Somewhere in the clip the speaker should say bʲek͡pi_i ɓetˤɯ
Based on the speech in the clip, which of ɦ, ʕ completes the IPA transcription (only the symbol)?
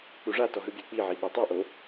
ʕ